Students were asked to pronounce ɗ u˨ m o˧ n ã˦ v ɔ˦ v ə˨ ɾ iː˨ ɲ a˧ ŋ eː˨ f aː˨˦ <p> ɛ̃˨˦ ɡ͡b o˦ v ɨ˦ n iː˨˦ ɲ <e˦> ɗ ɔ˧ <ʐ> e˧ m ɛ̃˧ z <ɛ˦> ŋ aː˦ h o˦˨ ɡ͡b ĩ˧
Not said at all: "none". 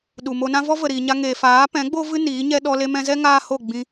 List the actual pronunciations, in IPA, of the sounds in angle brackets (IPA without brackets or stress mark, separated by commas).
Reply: p, ɛ˦, l, ɛ˦